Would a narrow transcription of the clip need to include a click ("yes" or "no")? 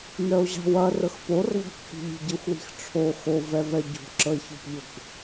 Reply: yes